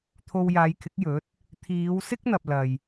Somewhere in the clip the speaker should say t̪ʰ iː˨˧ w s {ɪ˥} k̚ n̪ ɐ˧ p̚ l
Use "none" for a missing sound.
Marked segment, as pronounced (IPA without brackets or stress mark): ɪ˥